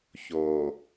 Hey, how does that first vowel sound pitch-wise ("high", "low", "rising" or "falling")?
low